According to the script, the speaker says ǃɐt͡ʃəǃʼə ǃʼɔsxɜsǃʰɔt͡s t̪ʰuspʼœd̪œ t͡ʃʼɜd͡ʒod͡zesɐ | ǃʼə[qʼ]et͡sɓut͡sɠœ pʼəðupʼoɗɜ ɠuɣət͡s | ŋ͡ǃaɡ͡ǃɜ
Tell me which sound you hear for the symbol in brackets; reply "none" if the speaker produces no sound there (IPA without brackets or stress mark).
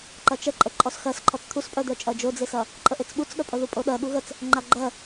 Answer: ʔ